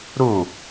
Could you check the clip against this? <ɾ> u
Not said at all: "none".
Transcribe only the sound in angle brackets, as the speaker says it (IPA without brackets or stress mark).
ɾ